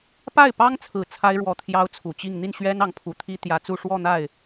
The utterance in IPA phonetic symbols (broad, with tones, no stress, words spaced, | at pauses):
pa˥˩ɪ̯pɑ˥ŋt͡sʰɹ̩˨˩ t͡sʰa˥ɪ̯ɻwɔ˧˥ t̪ʰjɑ˥ʊ̯t͡sʰu˨˩t͡ɕi˥˧ŋ n̪i˥˩nɕɥɛ˥n ɑ˧˥ŋpʰu˨˩t̪ʰi˥ t̪jä˧˥t͡su˥˧ ʂwɔ˥˧n̪a˥˩ɪ̯